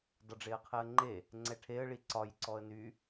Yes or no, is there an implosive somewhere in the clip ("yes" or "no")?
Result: no